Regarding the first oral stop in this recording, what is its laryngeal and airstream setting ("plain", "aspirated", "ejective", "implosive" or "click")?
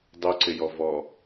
plain